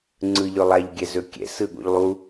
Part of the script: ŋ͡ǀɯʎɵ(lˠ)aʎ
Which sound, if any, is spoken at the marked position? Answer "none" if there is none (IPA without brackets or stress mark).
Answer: lˠ